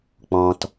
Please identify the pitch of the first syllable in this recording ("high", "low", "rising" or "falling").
low